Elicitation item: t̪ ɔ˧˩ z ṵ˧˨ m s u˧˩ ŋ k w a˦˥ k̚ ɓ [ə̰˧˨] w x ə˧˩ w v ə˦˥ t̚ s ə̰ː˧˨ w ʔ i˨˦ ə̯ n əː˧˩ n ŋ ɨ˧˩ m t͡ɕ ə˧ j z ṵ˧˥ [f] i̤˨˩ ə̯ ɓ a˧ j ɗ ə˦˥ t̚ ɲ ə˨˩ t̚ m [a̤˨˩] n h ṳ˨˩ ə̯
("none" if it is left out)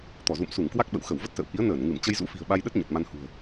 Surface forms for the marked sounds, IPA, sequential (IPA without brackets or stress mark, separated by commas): ə̰˧˨, f, a˧